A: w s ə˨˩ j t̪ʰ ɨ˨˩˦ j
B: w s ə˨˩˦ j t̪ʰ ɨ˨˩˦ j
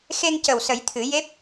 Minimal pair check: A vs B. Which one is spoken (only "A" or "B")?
B